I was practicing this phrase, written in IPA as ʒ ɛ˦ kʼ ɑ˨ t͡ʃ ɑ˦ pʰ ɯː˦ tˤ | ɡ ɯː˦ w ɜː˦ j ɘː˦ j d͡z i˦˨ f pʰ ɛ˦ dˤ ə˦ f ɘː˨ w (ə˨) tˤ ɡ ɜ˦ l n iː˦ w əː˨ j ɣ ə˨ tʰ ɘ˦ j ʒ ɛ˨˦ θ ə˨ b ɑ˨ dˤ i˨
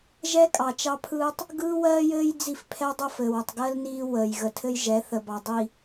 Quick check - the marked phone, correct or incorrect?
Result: correct